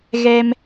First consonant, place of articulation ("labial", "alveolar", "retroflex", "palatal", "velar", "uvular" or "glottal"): velar